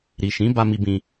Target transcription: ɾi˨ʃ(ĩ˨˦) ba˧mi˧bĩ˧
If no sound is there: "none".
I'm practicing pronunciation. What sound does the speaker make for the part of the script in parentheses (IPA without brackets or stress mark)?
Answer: ĩ˨˦